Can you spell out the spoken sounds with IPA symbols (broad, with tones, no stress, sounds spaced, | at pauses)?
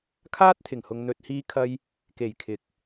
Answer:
kʰ aː˥ t̚ t̪ʰ ɪ˨˩ ŋ h ʊ˨ ŋ n̪ ɵ˨ t̚ h iː˧ kʰ ɐ˧ j | k e˨˩ j kʰ ɪ˨˥ k̚